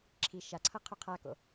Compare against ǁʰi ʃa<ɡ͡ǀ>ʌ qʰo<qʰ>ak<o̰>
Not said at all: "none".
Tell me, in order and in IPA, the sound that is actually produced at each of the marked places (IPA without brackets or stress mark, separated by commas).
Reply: ǀʰ, qʰ, o̰